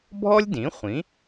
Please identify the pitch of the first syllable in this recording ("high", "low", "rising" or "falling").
high